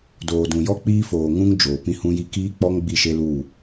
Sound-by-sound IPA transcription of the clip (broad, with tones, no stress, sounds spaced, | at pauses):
d oː˨ d ũ˨ j ɔ˦ k͡p iː˦ f oː˨ ŋ ũ˦ ŋ d͡ʒ oː˨ p ĩ˦ h ũ˦ j i˦ k iː˦ k͡p ɔ˦ ŋ ɡ͡b i˦˨ ʃ e˦ l uː˦˨